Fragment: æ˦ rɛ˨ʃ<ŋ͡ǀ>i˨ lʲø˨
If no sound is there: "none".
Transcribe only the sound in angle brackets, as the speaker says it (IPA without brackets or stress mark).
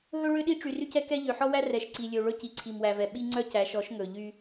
ǀ